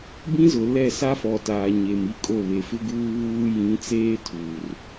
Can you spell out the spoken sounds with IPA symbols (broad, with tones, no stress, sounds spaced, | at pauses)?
b ĩ˦ z ʊ˨ l ɛ˦˨ s a˦ f ɔ˨ t aː˨ ɲ e˨ m i˦ kʼ o˦˨ β e˨ f ɪ˦ ɡ uː˦ β uː˦ j ĩ˨˦ t͡s eː˦ tʰ uː˨ r